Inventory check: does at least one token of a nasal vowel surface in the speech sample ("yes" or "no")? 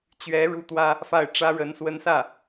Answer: no